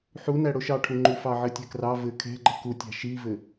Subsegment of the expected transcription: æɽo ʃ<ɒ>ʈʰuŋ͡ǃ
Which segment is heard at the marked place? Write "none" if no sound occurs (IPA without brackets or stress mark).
ɑ